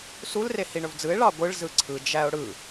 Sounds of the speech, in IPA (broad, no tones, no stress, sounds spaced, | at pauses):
s u l r e h i ɳ ɵ v d͡z ɯ ɪ̯ ɭ ɑ ɡʷ ɯ ɭ z ɯ ǀʰ ɯ d͡ʒ æ ʊ̯ ɽ ɯ